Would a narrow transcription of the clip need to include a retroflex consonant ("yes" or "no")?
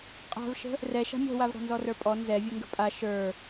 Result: no